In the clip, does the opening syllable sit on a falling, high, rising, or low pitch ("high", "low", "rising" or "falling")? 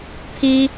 high